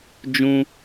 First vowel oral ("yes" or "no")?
no